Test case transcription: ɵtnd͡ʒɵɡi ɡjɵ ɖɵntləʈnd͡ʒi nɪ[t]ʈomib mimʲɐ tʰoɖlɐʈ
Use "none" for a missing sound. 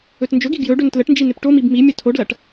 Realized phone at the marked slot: p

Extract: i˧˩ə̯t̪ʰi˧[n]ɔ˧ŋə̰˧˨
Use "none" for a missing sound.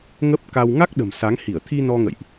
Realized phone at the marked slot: n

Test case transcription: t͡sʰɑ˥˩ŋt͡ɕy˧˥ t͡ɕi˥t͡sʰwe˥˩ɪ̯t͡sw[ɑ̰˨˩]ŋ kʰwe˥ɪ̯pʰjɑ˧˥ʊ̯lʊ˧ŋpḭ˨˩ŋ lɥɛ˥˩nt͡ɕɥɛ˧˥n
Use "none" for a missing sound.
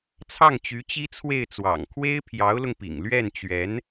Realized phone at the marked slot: ɑ̰˨˩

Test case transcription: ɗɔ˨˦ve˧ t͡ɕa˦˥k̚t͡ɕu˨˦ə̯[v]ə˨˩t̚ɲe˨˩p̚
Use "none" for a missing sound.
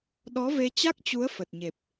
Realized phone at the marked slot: f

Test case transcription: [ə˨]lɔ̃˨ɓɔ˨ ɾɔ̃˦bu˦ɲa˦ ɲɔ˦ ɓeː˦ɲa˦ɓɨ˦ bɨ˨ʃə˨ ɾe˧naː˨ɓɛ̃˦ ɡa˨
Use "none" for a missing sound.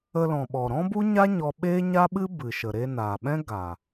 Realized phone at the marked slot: ə˧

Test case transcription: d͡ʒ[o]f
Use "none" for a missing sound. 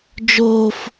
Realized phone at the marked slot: o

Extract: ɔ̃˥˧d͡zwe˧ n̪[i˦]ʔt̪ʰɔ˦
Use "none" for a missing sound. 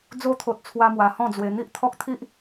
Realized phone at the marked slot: i˦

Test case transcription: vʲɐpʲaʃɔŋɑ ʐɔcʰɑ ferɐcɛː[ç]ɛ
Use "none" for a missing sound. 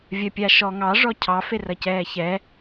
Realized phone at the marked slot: ç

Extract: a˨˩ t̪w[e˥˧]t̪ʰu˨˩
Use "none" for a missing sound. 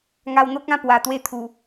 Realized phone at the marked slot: e˥˧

